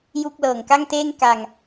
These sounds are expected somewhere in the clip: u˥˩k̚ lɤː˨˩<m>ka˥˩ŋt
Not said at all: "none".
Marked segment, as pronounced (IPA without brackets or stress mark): ŋ